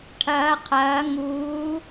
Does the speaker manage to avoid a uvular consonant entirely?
no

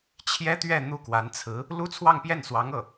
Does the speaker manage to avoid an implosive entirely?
yes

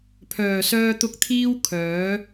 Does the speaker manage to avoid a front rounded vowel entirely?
no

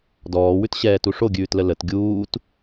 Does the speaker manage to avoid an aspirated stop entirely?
yes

